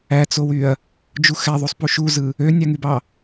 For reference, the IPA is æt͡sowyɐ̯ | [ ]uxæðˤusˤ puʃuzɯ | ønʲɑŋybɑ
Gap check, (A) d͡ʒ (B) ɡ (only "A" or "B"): A